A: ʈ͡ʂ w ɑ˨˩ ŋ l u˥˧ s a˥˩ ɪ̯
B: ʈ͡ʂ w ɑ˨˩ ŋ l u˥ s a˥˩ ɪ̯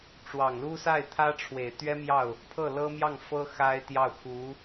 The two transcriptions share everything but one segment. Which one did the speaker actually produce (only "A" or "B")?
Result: B